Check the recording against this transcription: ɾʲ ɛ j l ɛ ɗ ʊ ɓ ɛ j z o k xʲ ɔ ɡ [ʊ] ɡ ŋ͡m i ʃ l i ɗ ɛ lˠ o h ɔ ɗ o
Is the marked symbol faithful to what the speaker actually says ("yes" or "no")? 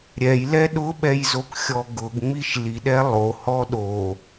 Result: yes